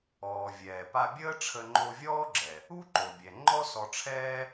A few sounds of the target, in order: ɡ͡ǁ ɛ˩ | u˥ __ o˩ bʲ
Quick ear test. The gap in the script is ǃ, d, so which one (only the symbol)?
ǃ